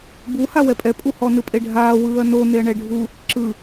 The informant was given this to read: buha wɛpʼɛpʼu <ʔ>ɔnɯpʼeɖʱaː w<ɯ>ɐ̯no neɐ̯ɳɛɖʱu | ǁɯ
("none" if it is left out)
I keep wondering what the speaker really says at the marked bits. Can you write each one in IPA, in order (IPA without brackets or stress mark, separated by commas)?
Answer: h, ɯː